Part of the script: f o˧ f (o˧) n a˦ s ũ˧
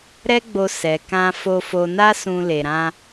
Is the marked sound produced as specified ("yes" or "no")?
yes